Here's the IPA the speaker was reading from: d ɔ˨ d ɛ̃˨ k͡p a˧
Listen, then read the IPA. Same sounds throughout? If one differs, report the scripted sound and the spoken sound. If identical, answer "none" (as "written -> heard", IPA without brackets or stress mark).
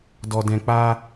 none